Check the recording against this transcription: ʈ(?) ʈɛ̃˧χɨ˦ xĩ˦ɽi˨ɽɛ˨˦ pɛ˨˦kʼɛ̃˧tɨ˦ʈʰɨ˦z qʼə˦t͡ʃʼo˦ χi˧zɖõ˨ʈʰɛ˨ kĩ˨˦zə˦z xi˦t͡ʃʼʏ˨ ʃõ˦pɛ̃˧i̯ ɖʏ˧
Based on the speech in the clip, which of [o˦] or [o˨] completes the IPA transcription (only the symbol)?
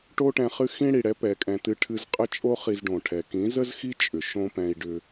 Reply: o˦